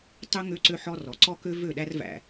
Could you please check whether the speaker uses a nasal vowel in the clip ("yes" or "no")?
no